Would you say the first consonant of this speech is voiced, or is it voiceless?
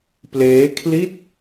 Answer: voiceless